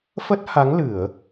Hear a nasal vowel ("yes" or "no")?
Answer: no